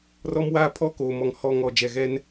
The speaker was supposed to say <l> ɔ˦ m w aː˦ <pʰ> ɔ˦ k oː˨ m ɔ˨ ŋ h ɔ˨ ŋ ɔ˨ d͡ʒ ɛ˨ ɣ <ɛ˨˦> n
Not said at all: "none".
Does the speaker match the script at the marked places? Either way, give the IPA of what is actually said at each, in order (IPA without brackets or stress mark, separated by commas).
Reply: r, pʰ, ɛ˦